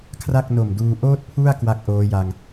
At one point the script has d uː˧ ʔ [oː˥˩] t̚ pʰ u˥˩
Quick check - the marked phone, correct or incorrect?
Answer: correct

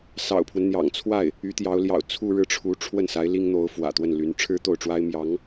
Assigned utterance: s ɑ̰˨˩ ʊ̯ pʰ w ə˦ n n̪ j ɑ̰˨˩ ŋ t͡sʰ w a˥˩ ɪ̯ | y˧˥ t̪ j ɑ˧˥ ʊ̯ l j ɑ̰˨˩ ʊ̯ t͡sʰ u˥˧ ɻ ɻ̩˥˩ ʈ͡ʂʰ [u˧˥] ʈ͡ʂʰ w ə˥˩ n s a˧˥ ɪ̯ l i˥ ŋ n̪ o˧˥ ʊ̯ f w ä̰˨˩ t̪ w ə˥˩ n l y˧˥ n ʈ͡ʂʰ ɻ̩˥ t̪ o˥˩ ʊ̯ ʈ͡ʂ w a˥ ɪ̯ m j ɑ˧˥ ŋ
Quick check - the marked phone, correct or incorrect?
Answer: correct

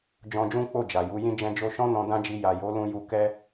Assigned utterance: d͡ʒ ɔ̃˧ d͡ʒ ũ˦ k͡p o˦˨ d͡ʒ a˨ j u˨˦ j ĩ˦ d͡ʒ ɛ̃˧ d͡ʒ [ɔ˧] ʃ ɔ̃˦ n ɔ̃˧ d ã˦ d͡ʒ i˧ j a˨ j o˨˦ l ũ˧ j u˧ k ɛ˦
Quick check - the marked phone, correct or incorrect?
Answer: incorrect: o˧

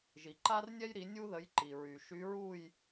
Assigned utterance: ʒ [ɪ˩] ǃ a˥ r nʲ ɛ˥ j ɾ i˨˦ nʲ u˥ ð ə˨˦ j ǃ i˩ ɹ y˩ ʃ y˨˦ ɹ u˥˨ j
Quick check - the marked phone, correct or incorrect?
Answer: incorrect: i˩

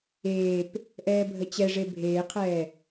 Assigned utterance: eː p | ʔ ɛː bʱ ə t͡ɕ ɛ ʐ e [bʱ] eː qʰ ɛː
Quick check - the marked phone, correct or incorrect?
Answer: correct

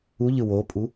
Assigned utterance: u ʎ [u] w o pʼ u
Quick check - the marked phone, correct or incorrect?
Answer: incorrect: ɯ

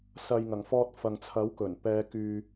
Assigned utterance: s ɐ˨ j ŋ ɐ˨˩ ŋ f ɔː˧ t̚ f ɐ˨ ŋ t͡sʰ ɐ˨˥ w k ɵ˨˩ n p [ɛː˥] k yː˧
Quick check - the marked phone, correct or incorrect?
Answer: incorrect: ɛː˨˧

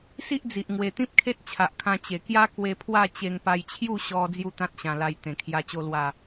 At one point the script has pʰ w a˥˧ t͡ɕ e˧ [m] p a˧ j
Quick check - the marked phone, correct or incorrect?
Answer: incorrect: ŋ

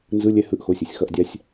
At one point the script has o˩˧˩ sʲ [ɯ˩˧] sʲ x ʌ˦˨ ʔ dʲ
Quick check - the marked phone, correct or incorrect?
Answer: incorrect: ɯ˩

